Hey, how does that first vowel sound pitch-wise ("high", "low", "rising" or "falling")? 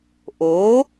rising